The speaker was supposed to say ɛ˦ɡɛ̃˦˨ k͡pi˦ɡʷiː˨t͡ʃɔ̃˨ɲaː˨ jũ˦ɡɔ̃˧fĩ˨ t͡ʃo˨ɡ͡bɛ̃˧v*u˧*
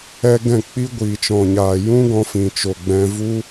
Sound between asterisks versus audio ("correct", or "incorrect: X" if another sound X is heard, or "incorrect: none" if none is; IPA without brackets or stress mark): incorrect: u˦